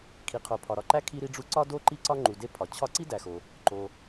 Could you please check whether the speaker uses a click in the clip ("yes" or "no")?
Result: yes